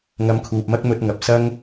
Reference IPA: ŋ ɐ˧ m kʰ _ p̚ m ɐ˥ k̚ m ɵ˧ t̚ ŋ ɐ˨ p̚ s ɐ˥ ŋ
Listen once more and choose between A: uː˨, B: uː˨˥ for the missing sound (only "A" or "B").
A